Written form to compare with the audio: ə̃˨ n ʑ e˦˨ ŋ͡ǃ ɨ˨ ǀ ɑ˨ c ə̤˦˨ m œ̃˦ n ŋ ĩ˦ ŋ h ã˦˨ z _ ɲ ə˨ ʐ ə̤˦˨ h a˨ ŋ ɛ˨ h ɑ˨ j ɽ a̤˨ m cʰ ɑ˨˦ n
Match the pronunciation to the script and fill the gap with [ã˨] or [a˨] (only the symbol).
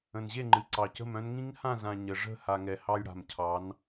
ã˨